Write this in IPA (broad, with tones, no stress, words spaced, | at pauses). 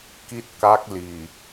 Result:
ki˥˩t̚ ka˦˥k̚ liː˨˩